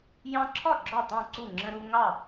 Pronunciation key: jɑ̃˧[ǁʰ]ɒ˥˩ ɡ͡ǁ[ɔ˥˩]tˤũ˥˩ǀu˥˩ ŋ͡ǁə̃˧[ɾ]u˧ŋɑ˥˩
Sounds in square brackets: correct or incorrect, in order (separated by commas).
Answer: correct, correct, correct